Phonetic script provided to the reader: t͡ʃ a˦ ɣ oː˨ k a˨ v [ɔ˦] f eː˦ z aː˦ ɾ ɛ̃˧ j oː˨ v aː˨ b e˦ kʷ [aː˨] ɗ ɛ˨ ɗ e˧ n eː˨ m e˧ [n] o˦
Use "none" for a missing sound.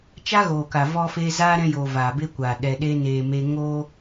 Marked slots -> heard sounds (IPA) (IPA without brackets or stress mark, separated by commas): ɔ˦, aː˨, ŋ